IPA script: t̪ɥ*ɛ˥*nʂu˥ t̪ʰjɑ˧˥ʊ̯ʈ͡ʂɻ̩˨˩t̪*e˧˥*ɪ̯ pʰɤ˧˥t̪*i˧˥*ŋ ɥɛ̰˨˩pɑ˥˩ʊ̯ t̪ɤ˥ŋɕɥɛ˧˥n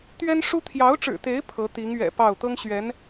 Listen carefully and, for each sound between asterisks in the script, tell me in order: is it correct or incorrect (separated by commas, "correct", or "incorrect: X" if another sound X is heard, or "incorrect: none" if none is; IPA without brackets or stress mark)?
correct, correct, correct